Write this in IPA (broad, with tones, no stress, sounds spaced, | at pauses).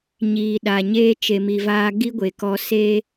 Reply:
ɲ iː˨ ɗ a˨ ɲ eː˦ t͡ʃ e˨ m i˨ v aː˧ ɡ i˦ ɡʷ e˨ k ɔ˧ s e˦